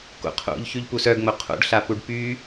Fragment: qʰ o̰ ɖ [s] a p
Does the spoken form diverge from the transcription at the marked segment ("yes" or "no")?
yes